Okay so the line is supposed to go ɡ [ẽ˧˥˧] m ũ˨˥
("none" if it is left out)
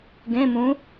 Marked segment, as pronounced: ẽ˧˥˧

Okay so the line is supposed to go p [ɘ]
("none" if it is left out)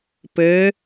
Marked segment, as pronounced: ɘ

